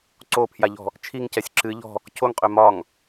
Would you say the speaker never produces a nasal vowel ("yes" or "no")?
yes